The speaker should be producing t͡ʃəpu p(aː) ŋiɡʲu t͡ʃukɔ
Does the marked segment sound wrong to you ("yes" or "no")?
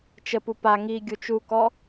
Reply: yes